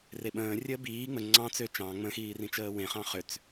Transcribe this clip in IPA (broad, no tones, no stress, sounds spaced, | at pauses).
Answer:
r e ɓ ə̃ː rʲ əː b iː ŋ͡m ə ŋ͡ǀ ɑ̃ t͡s ø t͡ʃ ɑ̃ ŋ͡m ə̃ x iː r ĩ t͡ʃ əː w ẽ χ ɑ̃ χ ø t͡s